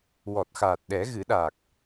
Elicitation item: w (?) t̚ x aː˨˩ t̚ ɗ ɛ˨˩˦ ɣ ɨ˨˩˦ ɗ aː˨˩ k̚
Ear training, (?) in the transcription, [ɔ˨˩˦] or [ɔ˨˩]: ɔ˨˩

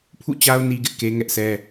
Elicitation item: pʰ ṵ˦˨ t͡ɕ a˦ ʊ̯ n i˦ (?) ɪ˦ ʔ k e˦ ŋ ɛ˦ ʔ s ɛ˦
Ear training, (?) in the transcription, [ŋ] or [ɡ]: ɡ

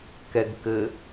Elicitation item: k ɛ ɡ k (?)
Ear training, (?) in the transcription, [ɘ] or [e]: ɘ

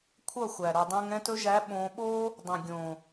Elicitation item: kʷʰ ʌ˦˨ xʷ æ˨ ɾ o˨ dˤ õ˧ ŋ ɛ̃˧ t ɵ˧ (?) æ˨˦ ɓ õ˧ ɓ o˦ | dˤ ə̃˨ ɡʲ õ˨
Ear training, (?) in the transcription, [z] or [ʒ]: ʒ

